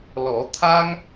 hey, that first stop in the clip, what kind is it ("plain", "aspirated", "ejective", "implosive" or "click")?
aspirated